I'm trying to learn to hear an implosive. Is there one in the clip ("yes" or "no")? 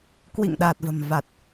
yes